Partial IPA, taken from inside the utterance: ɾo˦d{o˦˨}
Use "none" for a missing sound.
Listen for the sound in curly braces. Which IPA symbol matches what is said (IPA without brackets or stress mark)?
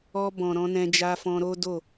o˦˨